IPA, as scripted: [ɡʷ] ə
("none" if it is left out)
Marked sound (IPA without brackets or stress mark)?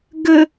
ɡ